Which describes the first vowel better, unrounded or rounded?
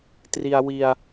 unrounded